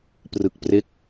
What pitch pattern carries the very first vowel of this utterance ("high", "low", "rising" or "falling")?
low